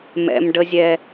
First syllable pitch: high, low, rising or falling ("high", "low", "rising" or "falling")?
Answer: high